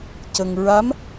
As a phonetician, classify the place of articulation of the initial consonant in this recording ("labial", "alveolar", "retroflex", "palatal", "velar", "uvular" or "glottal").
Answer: palatal